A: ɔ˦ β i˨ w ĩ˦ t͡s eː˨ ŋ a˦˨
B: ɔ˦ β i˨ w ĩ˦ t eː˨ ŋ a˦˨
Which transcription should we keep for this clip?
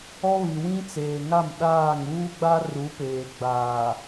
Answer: A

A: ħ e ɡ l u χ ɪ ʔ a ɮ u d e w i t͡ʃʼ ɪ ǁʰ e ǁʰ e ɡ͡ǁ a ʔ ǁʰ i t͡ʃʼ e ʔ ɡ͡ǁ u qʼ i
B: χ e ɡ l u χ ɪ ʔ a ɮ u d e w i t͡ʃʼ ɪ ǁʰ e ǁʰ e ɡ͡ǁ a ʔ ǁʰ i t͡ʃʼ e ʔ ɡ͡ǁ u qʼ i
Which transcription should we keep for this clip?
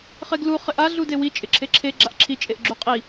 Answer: B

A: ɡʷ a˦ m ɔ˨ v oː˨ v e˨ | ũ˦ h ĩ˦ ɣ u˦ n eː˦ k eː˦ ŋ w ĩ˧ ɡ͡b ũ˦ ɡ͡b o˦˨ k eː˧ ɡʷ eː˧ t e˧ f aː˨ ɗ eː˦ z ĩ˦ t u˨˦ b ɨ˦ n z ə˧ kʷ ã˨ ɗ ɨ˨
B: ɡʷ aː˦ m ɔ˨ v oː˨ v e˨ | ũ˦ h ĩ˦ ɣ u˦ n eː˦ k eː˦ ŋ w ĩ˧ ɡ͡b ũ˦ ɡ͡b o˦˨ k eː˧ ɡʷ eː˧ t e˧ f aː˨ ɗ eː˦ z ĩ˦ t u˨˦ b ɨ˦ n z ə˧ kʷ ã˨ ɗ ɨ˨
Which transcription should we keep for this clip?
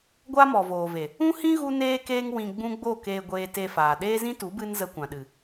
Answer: A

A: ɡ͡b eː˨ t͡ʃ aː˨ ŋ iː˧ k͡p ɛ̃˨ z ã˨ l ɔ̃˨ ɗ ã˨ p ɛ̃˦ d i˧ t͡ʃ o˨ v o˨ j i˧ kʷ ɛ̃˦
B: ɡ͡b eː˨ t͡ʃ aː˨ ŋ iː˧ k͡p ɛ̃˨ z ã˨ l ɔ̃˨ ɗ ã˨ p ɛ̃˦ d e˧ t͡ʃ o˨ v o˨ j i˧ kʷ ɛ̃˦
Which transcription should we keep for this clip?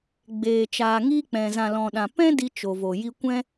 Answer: A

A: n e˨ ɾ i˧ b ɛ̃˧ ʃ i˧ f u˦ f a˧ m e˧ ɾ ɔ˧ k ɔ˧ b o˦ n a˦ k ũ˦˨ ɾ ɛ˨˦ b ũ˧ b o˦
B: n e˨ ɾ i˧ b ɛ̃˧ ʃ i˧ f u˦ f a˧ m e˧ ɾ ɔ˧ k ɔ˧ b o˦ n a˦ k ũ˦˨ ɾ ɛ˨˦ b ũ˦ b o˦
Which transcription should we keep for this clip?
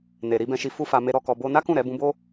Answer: A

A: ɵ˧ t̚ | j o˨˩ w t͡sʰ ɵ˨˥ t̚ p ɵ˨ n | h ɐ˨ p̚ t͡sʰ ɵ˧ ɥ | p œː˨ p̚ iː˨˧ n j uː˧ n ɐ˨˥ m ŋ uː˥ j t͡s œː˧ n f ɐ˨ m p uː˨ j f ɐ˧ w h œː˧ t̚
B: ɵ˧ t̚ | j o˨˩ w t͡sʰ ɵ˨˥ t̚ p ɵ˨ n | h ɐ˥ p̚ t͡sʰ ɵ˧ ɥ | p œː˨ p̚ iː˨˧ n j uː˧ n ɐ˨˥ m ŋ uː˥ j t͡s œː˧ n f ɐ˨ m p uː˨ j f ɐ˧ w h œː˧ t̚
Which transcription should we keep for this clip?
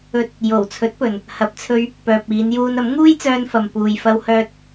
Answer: A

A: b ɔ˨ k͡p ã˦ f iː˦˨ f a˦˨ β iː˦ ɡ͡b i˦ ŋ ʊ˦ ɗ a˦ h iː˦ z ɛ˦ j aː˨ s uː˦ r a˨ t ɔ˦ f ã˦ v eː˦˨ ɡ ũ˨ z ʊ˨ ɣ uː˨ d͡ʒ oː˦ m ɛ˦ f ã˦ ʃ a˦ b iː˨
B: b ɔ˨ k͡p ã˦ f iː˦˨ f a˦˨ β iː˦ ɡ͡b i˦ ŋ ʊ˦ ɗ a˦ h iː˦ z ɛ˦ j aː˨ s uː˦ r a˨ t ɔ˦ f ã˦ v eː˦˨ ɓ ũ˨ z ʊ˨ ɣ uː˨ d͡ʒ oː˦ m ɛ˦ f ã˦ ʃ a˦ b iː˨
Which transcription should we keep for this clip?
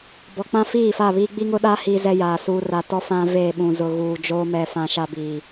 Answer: B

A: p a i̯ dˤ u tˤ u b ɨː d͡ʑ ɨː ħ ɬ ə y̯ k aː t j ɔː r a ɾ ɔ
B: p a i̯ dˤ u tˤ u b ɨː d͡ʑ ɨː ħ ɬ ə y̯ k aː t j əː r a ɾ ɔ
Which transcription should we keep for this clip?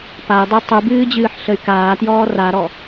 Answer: A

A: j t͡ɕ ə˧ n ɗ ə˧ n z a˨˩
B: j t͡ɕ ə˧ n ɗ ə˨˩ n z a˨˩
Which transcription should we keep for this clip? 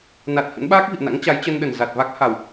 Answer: B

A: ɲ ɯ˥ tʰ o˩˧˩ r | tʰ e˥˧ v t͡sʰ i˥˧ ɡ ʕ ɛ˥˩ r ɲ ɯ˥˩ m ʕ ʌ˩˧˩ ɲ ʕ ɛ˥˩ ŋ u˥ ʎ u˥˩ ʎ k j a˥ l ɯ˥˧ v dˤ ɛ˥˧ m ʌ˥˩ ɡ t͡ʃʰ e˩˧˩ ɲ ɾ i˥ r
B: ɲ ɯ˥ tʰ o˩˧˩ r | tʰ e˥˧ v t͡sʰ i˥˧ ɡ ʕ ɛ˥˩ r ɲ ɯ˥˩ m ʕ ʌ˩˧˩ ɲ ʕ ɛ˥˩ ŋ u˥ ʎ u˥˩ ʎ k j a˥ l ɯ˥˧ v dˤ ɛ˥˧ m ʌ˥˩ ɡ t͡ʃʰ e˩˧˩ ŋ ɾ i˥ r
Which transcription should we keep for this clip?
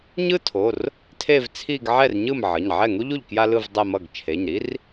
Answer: A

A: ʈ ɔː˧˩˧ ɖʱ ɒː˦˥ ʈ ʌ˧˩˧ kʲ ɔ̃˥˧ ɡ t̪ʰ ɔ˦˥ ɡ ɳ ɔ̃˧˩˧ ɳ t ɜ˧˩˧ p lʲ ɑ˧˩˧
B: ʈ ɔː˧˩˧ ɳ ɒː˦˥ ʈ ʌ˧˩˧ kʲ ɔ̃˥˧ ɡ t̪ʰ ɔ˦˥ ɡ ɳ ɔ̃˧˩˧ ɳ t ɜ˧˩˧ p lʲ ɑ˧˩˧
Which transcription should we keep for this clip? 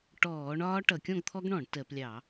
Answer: B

